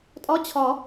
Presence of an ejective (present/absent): present